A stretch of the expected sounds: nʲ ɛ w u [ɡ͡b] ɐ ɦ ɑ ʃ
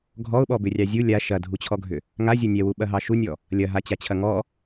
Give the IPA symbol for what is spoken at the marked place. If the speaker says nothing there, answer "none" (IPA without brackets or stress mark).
ɓ